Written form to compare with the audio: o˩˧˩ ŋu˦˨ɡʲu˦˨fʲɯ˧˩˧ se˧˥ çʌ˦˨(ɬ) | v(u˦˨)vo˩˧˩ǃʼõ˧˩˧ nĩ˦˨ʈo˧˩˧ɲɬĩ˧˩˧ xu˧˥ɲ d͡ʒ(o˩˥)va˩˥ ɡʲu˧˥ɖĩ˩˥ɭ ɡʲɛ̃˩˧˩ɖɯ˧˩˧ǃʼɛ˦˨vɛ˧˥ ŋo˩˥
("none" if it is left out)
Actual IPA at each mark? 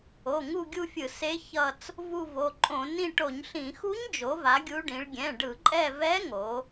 t͡s, u˦˨, o˩˥

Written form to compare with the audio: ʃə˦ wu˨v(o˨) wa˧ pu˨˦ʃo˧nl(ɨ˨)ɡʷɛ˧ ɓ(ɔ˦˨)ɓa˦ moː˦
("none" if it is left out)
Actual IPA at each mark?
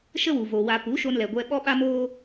o˨, ɛ˨, ɔ˦

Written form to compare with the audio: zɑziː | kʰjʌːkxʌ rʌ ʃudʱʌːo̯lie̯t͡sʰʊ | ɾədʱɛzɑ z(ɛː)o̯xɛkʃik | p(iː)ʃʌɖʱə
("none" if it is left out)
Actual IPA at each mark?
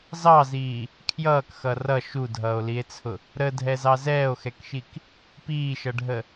ɛː, iː

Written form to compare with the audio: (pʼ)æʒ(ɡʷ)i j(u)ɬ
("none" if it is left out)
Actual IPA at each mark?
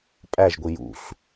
pʼ, ɡʷ, ṵ

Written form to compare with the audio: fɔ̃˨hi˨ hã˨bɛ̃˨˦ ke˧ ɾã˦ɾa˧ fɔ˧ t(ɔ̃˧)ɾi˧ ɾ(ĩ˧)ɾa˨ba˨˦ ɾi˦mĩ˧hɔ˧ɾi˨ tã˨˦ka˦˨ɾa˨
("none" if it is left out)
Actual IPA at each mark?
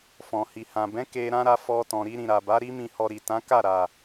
ɔ̃˨, ĩ˨

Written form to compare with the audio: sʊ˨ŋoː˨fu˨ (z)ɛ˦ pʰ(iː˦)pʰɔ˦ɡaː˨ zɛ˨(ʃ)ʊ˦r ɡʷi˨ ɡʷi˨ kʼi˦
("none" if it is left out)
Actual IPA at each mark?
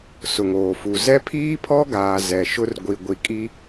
z, iː˦, ʃ

